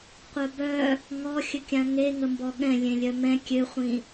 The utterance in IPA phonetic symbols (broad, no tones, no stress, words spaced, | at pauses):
qʷœbœ | ŋɔxʲəkʲã ŋeŋəmbɔ ɠɛ̃ lʲẽlʲœmɛ̃ kʲøχʷĩ